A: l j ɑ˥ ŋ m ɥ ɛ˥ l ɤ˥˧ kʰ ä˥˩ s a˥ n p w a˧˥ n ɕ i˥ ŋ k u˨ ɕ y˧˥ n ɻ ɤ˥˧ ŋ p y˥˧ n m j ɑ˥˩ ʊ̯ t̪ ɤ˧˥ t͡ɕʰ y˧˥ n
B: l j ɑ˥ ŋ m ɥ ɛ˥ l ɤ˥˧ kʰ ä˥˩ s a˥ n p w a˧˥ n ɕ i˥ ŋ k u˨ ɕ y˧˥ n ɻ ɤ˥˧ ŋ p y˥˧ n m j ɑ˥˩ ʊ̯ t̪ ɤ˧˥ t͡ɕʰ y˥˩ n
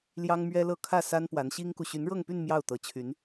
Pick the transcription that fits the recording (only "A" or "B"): A